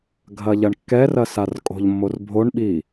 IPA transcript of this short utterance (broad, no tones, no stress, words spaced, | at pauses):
ɡʱɐʎɐɳkːɛrɐ sarkʼo̤ʎmːor bʱoɳɓi